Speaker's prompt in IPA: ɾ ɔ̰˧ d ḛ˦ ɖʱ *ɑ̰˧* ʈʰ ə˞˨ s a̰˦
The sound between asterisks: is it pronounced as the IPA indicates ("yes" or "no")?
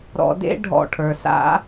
no